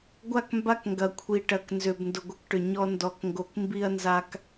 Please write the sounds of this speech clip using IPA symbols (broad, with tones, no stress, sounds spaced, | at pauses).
ɡʷ a˦˨ k m b a˦ k ŋ ɡ ɐ˨ kʷʰ i˨ ʈ ɐ˨ k n z ʏ˨ b n d ʊ˨ ɡʷ ɐ˦ k ʈ ʏ˨ ɲ ɔ˦ n d ɔ˨ k ŋ ɡ o˨ k m b i˦ ɐ̯ n z a˦ k